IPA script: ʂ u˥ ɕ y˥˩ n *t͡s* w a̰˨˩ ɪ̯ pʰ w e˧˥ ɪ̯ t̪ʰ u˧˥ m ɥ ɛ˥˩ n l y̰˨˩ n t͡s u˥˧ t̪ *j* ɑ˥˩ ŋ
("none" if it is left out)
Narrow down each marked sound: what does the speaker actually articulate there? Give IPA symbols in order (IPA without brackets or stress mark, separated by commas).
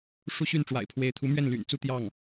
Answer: ʈ͡ʂ, j